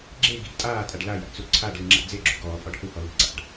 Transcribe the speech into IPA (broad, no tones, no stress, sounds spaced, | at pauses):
ɡ͡ǁ e ɡ i̤ ɡ tʼ aː tʼ a ɖ l a j a̰ t͡s u ǀʰ a ɖ l ɯ ŋ͡ǁ a̰ d͡z e ɡ͡ǁ ṳ ɡ ɔː pʼ ɔ ɖ h ɯ h ɔ l i̤ ǀ a̰ ɖ